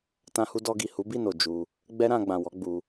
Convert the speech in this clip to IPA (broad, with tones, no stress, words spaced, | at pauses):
tã˧hu˧ dɔ˧ɡi˨ hu˨˦bi˦˨no˨ d͡ʒu˧ | ɡ͡bɛ˦ɾã˧ɡ͡bã˨wɔ˨˦ ɡ͡bu˧